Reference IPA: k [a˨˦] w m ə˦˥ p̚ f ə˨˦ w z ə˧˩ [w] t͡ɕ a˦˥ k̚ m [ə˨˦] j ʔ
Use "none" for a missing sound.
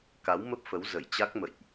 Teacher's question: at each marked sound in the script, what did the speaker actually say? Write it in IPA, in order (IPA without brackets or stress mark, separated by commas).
a˨˦, j, ə̰˧˨